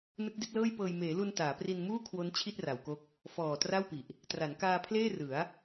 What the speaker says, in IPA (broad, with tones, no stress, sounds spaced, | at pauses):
n ɯ˦˥ k̚ d i˦˥ t̚ l ɤː˥˩ j p ɤː˧ j m eː˩˦ l u˧ n t aː˩˦ p r i˧ n m uː˥˩ kʰ w o˦˥ n t͡ɕʰ i˥˩ t̚ r a˩˦ w k o˦˥ k̚ | f ɔː˨˩ t r a˥˩ w p i˨˩ ʔ | t r a˩˦ n k aː˧ pʰ l eː˥˩ r ɯ˩˦ a̯